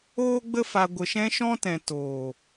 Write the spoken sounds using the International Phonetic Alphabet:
oː˦ ɡ͡b ə˦ f a˧ ɡʷ ə˨ ʃ ɛ̃˦ ʃ ɔ̃˦ t ɛ̃˨ t oː˨

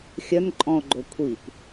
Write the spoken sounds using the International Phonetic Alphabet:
xʲ œ n ǃʼ ɔ̃ o̯ ɡ͡ǃ o kʷʰ i p

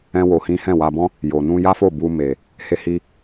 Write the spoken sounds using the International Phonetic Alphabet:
ɛ̃˦ w o˧ h ĩ˦ h ɛ̃˦˨ w a˧ b ɔ̃˦ | j o˨ n ũ˧ j a˦ f o˦˨ b u˧ m e˨ | h e˧ h i˧

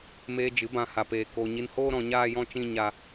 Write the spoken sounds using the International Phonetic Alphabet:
m eː˧ d͡ʒ ɨ˨˦ b ã˧ h a˧ p eː˧ k o˧ ɲ i˧ n h oː˦ ɾ ɔ̃˧ ɲ aː˦ j ɔ̃˦ t͡ʃ ĩ˦ ɲ a˦

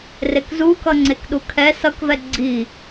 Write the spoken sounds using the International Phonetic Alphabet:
r e k z u k ʌ ŋ͡ǀ e k ɗ u kʰ ɛ s ʌ k v ɛ ɡ͡ǀ i

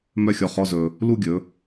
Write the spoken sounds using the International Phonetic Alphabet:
m œ˥˧ xʲ ɔ˧ χ ɔ˧˥˧ z ɵ˧ | l u˥˧ ɡʲ ɵ˩˧

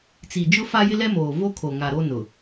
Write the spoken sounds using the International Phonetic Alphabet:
t͡s i˨ d͡ʒ ʊ˦ f a˦ j ɪ˦ l ɛ˦ m oː˨ v o˦ kʰ o˨ ŋ a˨ ɾ o˦ n ʊ˨

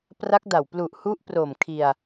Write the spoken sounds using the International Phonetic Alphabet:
p r a˦˥ k̚ d a˨˩ w p l u˨˩ ʔ h u˦˥ ʔ p r o˨˩ m kʰ i˧ a̯

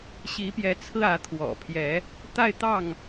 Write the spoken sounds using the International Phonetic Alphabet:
ɕ i˨˦ p j ɛ˨˦ t͡sʰ ɹ̩˧ ä˨˦ t̪ʰ w ɔ̰˨˩ pʰ j ɛ˨˦ | t̪ a˥˨ ɪ̯ t̪ ɑ˥˨ ŋ

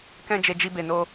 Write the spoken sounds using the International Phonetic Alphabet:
k ɛ̃˦ d͡ʒ e˧ d͡ʒ i˧ b e˨ n o˧

